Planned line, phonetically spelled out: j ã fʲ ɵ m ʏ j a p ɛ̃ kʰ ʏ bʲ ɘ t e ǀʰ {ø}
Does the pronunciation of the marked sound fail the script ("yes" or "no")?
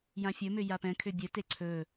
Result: yes